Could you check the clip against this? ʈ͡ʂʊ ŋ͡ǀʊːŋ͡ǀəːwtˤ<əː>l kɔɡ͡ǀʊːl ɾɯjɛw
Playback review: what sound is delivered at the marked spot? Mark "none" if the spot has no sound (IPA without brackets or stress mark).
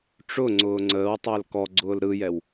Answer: əː